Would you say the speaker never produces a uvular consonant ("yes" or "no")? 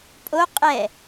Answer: no